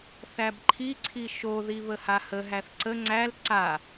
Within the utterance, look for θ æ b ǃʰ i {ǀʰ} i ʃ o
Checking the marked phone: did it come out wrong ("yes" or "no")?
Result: no